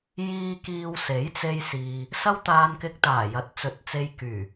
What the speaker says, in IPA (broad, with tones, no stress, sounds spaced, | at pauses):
j iː˧ k iː˧ w s e˨˥ j t͡s e˧ j s iː˨ | s ɐ˥ w t̪ aː˧ n k ɪ˧ k̚ t̪ aː˨˩ j ɐ˨ t̚ t͡s ɵ˨˥ t̚ t͡s e˧ j k yː˨˩